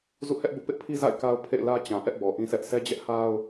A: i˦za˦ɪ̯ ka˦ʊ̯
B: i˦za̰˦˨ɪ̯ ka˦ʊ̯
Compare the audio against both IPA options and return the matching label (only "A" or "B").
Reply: B